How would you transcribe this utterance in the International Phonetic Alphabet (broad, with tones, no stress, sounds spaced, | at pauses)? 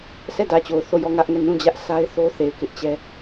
sʰ ɛ˦˨ d ä˨ t͡ɕ o˨ ʊ̯ θ o˦˨ j ɔ˦˨ ŋ ä˦ ʔ ŋ ɛ˦˨ n ũ˦˨ d͡ʑ ä˦ ʔ sʰ a˦ ɪ̯ θ o˦ θ e˨ ɪ̯ k ɪ˦ ʔ t͡ɕ ɛ˦